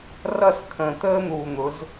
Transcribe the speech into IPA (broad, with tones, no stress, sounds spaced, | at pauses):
r ʌ˦˨ s kʰ ə̃ː˨ t̪ əː˦ n̪ uː˨ n̪ ʊ˨˦ z